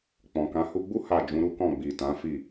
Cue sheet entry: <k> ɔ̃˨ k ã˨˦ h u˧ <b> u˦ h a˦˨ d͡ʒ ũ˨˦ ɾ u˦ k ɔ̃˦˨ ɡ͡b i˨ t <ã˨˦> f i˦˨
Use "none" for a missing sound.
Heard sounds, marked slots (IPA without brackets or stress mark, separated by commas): k͡p, ɡ͡b, ã˨˦